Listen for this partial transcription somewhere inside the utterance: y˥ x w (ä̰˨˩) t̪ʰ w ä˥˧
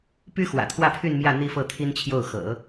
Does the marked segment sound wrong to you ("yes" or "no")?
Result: no